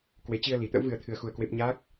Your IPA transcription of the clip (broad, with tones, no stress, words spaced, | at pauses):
kwe˨˦t͡ɕi˧ə̯li˨˩t̪ə̰˧˥w vɨ˧ə̯t̪ʰɨ˧ə̯xu˧ə̯kwe˦˥p̚ ɲa˦˥k̚